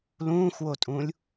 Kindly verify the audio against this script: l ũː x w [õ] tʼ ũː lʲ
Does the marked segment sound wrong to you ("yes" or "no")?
yes